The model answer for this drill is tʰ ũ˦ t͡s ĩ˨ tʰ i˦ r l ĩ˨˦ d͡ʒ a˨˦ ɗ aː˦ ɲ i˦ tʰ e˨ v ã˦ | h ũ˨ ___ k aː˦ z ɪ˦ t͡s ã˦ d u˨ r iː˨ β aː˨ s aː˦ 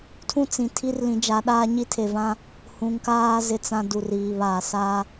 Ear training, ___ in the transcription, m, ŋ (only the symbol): ŋ